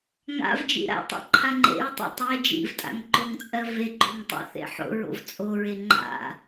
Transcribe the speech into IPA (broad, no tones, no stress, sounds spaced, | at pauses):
ŋ a̰ v d͡ʒ ḭ ɾ a̰ tˤ a̰ ǃʰ a ŋ͡ǃ ḛ ɹ tˤ ḭ tˤ e d͡ʒ ḭ v tʼ a̰ ŋ ǃ o ŋ t͡sʼ ɜ v e ɡ͡ǃ o ŋ tˤ o̰ θ ḛ ħ o̰ ɹ o̰ v t͡sʼ o ɹ e ŋ͡ǃ a̰